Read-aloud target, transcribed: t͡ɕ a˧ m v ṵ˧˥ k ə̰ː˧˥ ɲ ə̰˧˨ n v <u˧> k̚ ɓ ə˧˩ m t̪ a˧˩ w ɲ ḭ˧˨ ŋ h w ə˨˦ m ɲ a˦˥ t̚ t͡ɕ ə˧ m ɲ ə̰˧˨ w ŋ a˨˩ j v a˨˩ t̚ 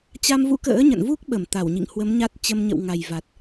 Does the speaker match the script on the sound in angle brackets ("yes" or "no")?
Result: no